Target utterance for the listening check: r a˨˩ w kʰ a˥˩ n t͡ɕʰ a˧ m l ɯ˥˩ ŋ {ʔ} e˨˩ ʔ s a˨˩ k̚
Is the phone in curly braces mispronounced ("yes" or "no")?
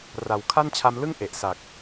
no